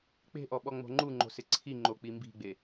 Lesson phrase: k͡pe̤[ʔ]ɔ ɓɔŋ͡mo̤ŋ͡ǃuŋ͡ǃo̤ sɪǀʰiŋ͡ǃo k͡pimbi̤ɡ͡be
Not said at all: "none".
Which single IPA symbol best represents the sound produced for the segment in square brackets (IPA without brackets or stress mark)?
ʔ